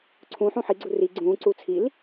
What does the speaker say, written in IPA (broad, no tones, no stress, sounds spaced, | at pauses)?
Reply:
ǀʰ ũ ħ ũ ħ i ɡ͡ǀ u r i ɡ͡ǀ ũː ǀ uː t͡sʰ i l